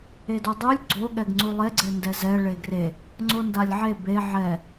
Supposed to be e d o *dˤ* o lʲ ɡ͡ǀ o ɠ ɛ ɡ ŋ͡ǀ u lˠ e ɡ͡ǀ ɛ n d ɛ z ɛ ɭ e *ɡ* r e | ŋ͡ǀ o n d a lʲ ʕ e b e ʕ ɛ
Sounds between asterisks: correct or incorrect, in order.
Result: correct, correct

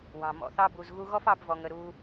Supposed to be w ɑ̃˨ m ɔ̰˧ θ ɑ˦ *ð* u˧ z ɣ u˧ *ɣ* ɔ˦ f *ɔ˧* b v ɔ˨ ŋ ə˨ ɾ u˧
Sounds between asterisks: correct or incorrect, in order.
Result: incorrect: b, correct, incorrect: ɑ˧

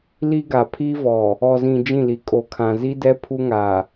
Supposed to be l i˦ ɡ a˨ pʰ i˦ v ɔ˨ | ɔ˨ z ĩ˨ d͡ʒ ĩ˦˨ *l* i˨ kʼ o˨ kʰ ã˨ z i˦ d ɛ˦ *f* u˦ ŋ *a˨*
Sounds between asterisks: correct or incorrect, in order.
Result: correct, incorrect: pʰ, correct

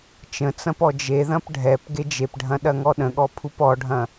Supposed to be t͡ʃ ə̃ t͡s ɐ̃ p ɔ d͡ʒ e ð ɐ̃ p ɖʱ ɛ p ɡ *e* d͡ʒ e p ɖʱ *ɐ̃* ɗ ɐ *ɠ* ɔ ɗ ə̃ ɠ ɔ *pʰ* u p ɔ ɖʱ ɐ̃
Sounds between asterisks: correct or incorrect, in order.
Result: correct, correct, incorrect: ŋ, correct

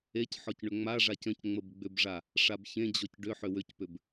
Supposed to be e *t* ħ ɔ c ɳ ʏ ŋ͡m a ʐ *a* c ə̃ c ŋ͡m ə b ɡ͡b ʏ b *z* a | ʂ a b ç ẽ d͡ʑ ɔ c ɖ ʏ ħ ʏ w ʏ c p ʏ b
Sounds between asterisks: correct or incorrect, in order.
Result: incorrect: c, correct, incorrect: ʐ

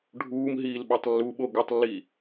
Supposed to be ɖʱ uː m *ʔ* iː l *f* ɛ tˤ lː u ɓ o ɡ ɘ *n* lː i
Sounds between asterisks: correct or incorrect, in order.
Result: incorrect: ɦ, incorrect: ɓ, incorrect: tˤ

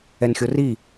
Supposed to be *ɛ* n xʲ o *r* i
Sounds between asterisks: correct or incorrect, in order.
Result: correct, correct

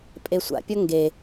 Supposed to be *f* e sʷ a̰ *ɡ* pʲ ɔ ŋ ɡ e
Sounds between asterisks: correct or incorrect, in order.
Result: incorrect: pʼ, incorrect: none

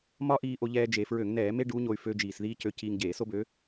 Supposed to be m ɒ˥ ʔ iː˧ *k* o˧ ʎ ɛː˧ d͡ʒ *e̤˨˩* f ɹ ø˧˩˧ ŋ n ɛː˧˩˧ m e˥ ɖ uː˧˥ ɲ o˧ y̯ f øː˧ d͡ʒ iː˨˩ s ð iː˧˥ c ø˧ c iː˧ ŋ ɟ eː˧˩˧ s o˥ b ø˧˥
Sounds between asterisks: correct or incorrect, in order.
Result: incorrect: ʔ, incorrect: e˨˩

